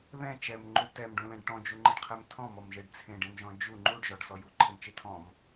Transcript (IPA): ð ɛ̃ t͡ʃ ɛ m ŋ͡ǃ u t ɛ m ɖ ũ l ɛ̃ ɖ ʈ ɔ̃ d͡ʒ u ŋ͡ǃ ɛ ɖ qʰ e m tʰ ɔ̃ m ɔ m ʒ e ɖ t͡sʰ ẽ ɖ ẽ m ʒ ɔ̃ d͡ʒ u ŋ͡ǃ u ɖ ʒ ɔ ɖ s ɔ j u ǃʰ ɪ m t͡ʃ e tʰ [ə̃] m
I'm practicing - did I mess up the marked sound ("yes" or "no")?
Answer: yes